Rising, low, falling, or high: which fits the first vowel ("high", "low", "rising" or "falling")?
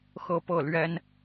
falling